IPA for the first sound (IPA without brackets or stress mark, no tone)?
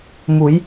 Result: m